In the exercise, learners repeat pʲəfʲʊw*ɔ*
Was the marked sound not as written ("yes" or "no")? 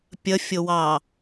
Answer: yes